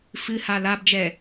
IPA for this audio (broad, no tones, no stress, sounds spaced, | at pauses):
f ɨ h a l a b d͡ʒ ɛ